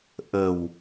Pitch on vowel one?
low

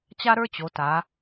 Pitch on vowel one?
high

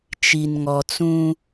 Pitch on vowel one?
low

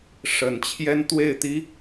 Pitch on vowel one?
low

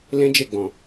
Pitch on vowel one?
high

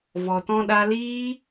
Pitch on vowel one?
low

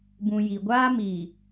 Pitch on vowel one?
low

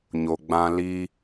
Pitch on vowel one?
low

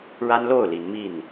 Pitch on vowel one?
high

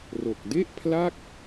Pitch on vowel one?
low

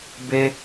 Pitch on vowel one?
high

